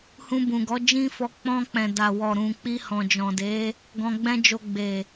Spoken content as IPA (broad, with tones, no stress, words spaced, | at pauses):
hũ˧bũ˨ ɡɔ˨˦d͡ʒĩ˦fɔ˧ k͡pɔ̃˧k͡pɛ̃˨ da˨ wɔ˨ ɾũ˨ k͡pi˧hɔ̃˨d͡ʒɔ̃˨de˨˦ | ɡɔ̃˧ɡ͡bɛ̃˦d͡ʒo˧ ɡ͡be˨